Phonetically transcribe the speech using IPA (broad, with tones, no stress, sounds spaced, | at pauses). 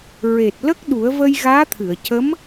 ɹ e˨˩ t̚ l ə˦˥ k̚ ɗ u˨˩˦ ə̯ v ə˧ j ɣ aː˧˥ t̪ʰ ɨ˨˩˨ ə̯ c ə˧˥ m